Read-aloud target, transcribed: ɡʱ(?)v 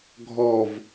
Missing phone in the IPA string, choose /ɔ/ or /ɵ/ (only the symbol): ɔ